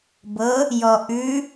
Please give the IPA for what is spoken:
b ɤ | j ɔ ʔ ʉ

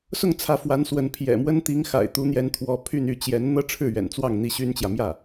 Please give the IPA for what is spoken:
s ʊ˥˩ ŋ t͡sʰ ä˧˥ f w a˧˥ n s w ə˧˥ n pʰ j ɛ̰˨˩ m w ə˥ n t̪ i˧˥ ŋ x a̰˨˩ ɪ̯ t̪ u˧˥ n̪ j ɛ˧˥ n t̪ʰ w ɔ˧˥ pʰ y˥˧ n y˥˩ t͡ɕ j ɛ˧˥ n n̪ ɤ˥ ʈ͡ʂʰ ɻ̩˥˩ ɥ ɛ̰˨˩ n t͡s w ɑ˥˩ ŋ n̪ i˥ ɕ y˥ n t͡ɕ j ä˨ m j ä˥˩

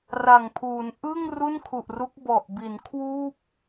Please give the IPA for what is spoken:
r a˨˩ ŋ pʰ uː˩˦ n ʔ ɯ˥˩ ŋ r u˥˩ n kʰ u˨˩ ʔ r u˦˥ k̚ b ɔ˨˩ ʔ b i˩˦ n kʰ w uː˥˩ p̚

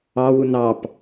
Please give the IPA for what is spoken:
ɑ w u n ɑ p

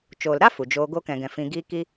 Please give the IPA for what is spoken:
t͡ʃ oː˨ l ɾ a˦ f u˨ d͡ʒ oː˧ ɡ o˧ k ɛ̃˨ ɡ ɛ̃˨ f ĩ˧ ɡ iː˦ k i˦

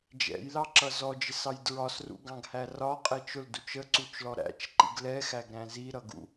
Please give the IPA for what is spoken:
d͡ʒ ɛ̰ j l ɑ ǁ ʌ z ɔ d͡ʒ ɪ s ɑ j d ɹ ɒ s r ṵ ɡ ɑ̃ ɡ h æ r ɒ qʼ ɛ t͡ʃ ʊ l d u t͡ʃ ə ǀ u t͡ʃ l ɔ ɾ æ̰ t͡ʃ ǃ ḭ ɡ l ɛ x æ ɡ ɾ æ̃ z i ɾ ʌ ɡ ṵ

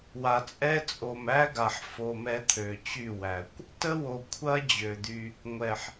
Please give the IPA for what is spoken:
w a˨ t͡sʼ ɛ˦ t͡sʼ o˨ m æ˦ ɡ a˨ ħ f o˧ m ɛ˦ t̪ʰ ø˨ t͡ɕ y˦˨ w æ˨ kʷ | t ə˦ w o˨ kʷʰ ɐ˦ d͡ʑ ø˨ d̪ y˧ | ŋʷ ɛ˨ ħ

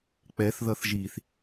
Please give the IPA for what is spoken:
k͡p ɛ θ ð ʌ θ ʒ i θ

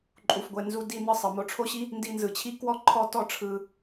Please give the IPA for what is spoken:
ǃʼ u˩ f ɡʷ ɛ˩ n z u˧ d i˧ n ɯ˧ sˤ ɤ˩ m o˧ ʈ͡ʂʰ o˥ ɕ i˥ | n d i˧ n z ɯ˩ t͡ɕʰ i˥ k w ɔ˥ ǃʰ ɔ˥ t ɔ˥ ʈ͡ʂʰ ɯ˧

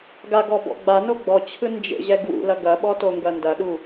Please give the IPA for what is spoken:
ɡ a ɡ ɔ b ɔ̰ ɡ͡b a n o ɡ͡b ɔ t͡ɕʰ ɯ n d͡ʒ ḛ ʑ ɛ ɡ w ṵ l ɐ ɡ ɐ ɓ ɔ t o ŋ ɡ ɐ n d ɐ ɗ u

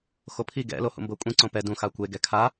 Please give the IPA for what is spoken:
x o pʰ i ɡ ɛ̰ l o h ṵ m b ɤ kʷʼ ĩ ǀ õ p ɛ d ũ x a kʷ e ɡ ɛ kʰ a

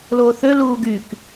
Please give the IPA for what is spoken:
l oː θ ø l uː ɡ y k

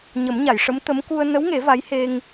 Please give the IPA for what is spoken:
ɲ ə˨˩˦ m ɲ a˨˩˨ j ʂ ə˧˥ m t̪ ə˧˥ m k u˧ ə̯ n ə˧˥ w ŋ e˨˩˦ v a˧˥ j h e˧ ŋ

